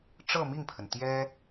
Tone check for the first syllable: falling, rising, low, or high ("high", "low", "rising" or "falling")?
falling